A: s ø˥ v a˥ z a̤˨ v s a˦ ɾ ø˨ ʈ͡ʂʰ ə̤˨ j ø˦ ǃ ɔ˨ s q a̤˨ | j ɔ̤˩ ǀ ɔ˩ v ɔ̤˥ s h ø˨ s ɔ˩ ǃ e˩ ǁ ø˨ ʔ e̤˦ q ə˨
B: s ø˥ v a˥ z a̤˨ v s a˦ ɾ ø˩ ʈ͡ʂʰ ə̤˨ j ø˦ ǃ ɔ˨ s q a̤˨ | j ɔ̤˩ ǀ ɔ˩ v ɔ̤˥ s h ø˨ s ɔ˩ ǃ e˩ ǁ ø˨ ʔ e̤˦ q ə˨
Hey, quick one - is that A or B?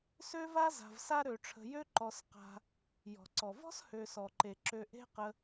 A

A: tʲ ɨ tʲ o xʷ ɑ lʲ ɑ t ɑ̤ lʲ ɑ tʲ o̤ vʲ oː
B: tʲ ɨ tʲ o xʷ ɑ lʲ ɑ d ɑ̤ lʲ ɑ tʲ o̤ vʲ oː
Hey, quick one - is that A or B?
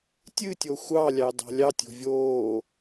B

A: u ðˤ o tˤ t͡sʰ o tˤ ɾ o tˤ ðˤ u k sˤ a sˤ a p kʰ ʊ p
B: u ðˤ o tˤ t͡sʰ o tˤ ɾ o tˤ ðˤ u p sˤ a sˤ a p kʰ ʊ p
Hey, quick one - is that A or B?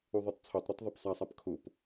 B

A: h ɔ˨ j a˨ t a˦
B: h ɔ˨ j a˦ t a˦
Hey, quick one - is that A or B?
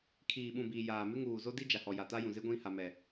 A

